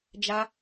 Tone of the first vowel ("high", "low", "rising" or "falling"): high